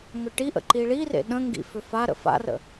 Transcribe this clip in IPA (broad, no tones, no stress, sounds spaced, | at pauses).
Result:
ŋ ʏ ʈ i ʔ ə̰ ǃ i ɭ i r ḛ ɗ ə̃ ŋ ɡ ḭ f ʏ f a ɾ ə̰ f a̰ r ə̰